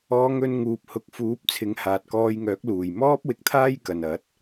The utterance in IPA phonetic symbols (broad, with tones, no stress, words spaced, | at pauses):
ɔː˨˧ ŋɵ˧n ŋuː˨p̚ hʊ˨˥k̚fuː˨˥p̚t͡sʰɪ˨˧ŋ haː˨t̚kɔː˧jŋœː˨˥k̚ luː˨˩j mɔː˥p̚wɪ˨k̚t̪ʰaː˥j kɐ˨nɐ˨˥t̚